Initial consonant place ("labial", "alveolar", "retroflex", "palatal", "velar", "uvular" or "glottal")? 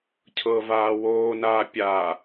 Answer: palatal